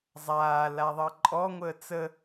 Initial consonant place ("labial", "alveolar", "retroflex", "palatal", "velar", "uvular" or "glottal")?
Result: alveolar